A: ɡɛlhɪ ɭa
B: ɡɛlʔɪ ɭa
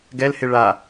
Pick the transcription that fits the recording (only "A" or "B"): A